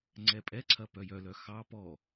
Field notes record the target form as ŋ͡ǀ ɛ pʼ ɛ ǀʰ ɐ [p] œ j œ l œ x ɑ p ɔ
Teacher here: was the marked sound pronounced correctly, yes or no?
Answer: yes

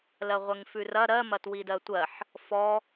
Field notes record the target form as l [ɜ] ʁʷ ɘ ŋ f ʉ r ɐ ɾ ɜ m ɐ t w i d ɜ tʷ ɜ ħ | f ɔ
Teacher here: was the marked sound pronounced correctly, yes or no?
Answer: yes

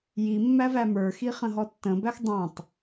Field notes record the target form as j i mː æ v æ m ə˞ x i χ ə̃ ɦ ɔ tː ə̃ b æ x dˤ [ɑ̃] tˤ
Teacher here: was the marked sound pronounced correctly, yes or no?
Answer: yes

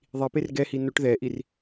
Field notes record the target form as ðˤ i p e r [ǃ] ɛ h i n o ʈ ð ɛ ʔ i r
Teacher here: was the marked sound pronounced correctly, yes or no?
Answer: no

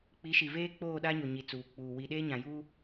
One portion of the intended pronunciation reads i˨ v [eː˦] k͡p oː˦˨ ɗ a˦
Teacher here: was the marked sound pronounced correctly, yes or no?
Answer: yes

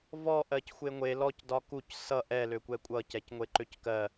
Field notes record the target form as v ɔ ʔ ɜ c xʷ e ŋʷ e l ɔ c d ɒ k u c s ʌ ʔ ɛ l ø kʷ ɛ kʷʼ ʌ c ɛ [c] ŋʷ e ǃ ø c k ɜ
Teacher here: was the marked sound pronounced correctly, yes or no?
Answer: yes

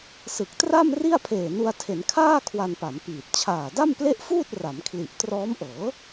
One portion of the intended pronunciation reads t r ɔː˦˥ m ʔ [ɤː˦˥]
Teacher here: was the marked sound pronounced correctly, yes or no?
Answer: no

